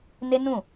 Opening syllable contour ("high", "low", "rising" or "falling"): high